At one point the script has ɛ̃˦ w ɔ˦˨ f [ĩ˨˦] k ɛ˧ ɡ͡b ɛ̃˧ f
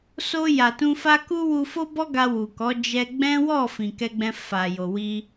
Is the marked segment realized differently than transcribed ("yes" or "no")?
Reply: yes